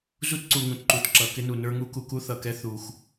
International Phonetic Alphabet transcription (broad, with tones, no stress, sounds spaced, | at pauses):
z u˦ t ǀ u˨ ŋ ũ˨ t ǃ u˨ t ǁ ʌ˨ k ɪ˦ n u˨ n ə˞˦ ŋ u˦ k u˨ k u˦ θ ʌ˨ k ɛ˦ θ u˨ x